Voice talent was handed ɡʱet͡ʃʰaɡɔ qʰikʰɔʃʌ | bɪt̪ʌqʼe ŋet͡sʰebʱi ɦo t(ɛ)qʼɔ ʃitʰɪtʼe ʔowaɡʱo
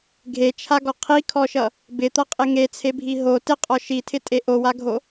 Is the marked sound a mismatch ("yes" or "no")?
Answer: yes